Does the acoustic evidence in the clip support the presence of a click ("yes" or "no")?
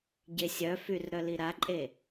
yes